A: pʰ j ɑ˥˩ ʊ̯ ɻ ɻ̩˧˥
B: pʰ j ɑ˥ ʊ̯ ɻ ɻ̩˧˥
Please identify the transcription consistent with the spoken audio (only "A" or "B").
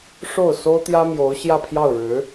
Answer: A